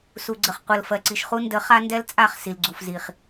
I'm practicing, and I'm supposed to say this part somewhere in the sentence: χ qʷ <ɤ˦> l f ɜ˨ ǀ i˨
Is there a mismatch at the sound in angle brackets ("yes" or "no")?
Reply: yes